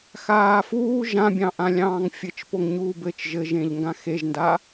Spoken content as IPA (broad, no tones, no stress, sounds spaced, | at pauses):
x aː f uː ʒ ã bʲ ɑ̃ ʔ ã lʲ ɑ̃ː ŋ fʲ ɘ t͡ʃ p o ŋ ɲ uː b ɘ t͡ʃ ʒ ɘ ʒ ẽ ʎ ŋ ɡ ã x e ʒ n d a